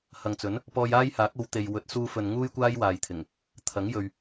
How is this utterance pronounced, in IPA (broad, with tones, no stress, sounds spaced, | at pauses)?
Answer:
h ɐ˨ ŋ t͡s ɵ˨˥ n | p ɔː˧ j aː˥ j h aː˨˥ k̚ o˨˧ w t̪ e˨ j w ɵ˨˥ t̚ s uː˧ f ɵ˨ n ŋ uː˥ j kʷ aː˥ j w aː˨ j t̪ʰ ɪ˨˩ ŋ | t̪ʰ ɐ˨˥ ŋ j ɵ˨ ɥ